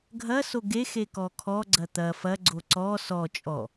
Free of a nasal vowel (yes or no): yes